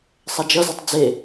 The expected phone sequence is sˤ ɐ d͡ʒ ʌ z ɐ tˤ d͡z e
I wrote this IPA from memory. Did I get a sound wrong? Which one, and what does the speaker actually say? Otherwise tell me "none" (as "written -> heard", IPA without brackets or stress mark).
none